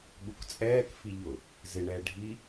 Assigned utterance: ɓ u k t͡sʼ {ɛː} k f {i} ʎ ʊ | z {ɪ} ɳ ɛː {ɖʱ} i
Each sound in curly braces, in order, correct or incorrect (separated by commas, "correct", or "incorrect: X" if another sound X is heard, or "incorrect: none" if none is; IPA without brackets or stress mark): correct, correct, correct, correct